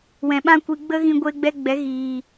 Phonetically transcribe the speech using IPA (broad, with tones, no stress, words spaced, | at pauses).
wɛ̃˨ɓã˦kʷi˧ ɡ͡bə˦ɣĩ˧ ɡʷe˦ɡ͡bɛ˦ ɡ͡bɛ˨˦ɣiː˨